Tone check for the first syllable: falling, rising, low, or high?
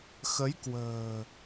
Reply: rising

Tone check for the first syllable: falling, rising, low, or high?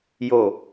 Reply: low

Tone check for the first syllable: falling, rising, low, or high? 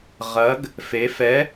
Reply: rising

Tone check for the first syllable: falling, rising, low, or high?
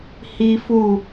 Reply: high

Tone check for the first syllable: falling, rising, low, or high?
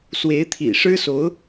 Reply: rising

